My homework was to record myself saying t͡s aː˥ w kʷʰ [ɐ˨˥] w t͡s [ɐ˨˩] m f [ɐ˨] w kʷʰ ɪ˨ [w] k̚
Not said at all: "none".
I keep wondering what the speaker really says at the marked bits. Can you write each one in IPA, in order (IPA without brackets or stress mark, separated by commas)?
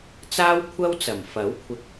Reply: ɐ˥, ɐ˨˩, ɐ˨˥, none